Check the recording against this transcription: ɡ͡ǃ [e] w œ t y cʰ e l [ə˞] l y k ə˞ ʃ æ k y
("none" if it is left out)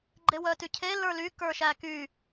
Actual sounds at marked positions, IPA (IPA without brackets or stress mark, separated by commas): e, ə˞